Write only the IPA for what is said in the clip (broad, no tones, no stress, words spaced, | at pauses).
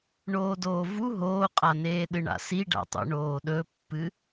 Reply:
ɳoːdoːvu ɦoːqʼaneːɗɨ ɳa̰siɖa̰tˤṵ ɳoːɗɵpːɨ